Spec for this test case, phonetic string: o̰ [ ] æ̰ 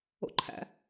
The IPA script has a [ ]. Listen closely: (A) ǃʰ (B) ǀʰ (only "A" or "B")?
A